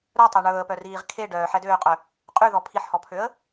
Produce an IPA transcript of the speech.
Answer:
ɾ œ tˤ œ ɳ ɵː ə̯ p œ r iː ʁ kʰ e ɖ œː ħ ɛ d øː qʼ œ | qʼ y ð ɔ pʰ i ħ h ɔ pʰ ø ə̯

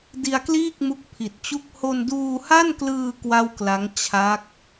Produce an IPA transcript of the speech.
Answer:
d i˧ a̯ k l iː˥˩ k̚ m u˦˥ k̚ pʰ i˨˩ t̚ t͡ɕ u˥˩ k̚ h o˧ n d uː˧ h a˥˩ n k l ɯː˧ k w a˥˩ w k l a˦˥ ŋ t͡ɕʰ a˦˥ k̚

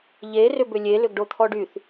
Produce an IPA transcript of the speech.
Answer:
ʎ e r ʏ b ʏ lʲ e l ʏ ɡ ɖ o t̪ʰ ɔ ɖ y θ

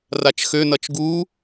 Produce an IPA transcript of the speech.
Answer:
r a t͡ʃ x ø n ʌ t͡ʃ ɡ u

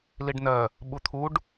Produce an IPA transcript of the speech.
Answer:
l i ɖ n ɜ | ɓ u t̪ʰ u ɖ

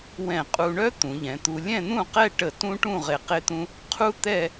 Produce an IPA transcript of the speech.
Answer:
w ɛ̃˧˩ qʼ u˧ ɳ œ˥ t̪ ũ˩˧ ʎ ɛ̃˩˧ t̪ u˧ lʲ ɛ̃˥˧ n̪ ũ˥˧ q ɛ˥˧ ʈ ə˧˩ t ũ˥ ʈ ũ˥˧ ʁ e˧˩ q e˥ t̪ ũ˥ | qʰ u˥ t̪ ɛ˥˧

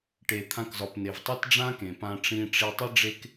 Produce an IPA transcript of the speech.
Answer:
ʈ e˧ t̪ʰ ã˦ k z ɒ˧ p n e˧ v tˤ i˦ t ɖ͡ʐ ã˦ k ẽ˨ p ã˧ ʈ͡ʂ ĩ˧ ʈ͡ʂ i˧ tˤ i˦ ɖ͡ʐ e˦ k

